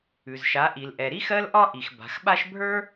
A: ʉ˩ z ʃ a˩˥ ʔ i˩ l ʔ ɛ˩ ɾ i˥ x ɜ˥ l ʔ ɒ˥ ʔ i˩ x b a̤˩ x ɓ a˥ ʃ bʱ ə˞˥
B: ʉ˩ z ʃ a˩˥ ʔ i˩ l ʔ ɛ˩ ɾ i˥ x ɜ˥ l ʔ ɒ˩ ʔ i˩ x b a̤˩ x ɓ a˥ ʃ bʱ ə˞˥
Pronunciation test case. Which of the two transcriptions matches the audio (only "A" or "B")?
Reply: A